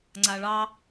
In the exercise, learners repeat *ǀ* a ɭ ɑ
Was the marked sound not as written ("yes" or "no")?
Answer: yes